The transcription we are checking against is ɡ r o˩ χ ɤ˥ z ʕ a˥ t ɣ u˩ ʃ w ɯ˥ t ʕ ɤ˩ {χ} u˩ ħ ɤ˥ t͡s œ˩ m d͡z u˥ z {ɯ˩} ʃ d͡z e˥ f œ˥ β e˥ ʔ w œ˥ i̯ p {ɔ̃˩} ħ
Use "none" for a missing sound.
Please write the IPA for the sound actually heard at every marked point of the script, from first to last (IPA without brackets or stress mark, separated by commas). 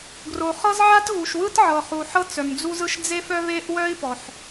χ, ɯ˥, ɔ˩